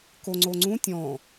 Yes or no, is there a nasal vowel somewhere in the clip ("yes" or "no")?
yes